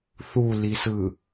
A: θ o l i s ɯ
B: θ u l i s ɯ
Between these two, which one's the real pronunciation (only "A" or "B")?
B